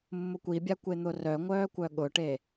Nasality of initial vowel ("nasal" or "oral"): oral